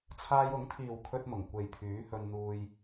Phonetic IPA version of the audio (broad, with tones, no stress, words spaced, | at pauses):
t͡sʰaː˧jʊ˨˥ŋt̪ʰiː˨w kʰɵ˧t̚mʊ˨˩ŋ kʷe˨jpʰyː˨˥hɵ˧nn̪uː˧j